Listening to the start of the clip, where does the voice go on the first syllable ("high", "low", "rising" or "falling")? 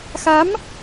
rising